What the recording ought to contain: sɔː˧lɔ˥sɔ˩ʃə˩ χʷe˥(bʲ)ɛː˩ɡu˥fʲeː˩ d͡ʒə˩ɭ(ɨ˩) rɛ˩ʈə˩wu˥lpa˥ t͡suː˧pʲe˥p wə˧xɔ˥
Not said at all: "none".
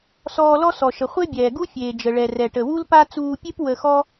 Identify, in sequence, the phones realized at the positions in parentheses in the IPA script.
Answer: bʲ, ɛ˩

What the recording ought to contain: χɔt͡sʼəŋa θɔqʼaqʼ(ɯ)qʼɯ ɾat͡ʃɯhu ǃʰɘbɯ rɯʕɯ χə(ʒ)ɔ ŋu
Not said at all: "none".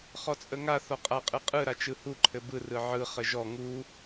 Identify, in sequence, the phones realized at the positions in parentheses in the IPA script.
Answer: ɯ, ʒ

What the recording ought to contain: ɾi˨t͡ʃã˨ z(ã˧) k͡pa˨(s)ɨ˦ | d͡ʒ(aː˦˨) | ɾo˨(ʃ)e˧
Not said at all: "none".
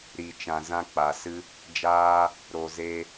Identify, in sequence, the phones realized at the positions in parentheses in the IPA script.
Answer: ã˧, s, aː˧, z

